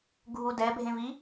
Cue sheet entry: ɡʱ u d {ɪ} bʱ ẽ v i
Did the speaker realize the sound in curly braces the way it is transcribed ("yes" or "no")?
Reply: no